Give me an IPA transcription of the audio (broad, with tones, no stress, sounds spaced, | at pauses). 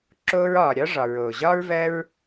ǁ oː˧ ɹ ɒː˨ ɾʲ ɒ˦ ʐ ɒ˨ ɹ oː˨ ʑ ɒː˦ ɹ v ɜ˦ ɹ